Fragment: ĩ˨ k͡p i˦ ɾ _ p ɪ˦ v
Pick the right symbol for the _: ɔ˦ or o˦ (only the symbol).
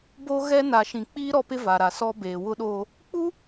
ɔ˦